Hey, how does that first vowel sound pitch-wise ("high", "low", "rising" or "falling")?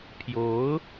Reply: rising